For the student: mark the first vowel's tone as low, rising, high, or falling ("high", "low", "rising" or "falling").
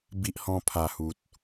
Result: high